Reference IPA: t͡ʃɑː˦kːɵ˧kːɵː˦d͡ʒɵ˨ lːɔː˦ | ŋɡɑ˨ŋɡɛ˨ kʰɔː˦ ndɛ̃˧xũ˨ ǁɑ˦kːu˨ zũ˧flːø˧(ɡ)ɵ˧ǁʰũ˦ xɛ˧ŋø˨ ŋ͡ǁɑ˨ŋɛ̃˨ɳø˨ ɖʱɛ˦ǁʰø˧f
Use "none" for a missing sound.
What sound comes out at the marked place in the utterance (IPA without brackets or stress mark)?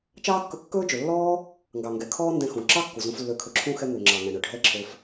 kʰ